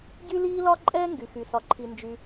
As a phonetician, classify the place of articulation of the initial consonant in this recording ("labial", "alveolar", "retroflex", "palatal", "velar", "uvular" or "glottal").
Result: palatal